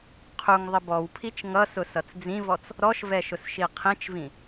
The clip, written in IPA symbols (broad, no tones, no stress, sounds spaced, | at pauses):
qʰ u ŋ ðˤ ə b ɔ w pʰ i t͡ʃ ŋ ʌ s ʊ s ʌ t͡s d͡z ĩ v ɔ t͡s | ɾ ɔ ʃ v ɛ ʃ ʊ s ʃ i qʰ ĩ t͡ʃ v ĩ